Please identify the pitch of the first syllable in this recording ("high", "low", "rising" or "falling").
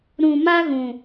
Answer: low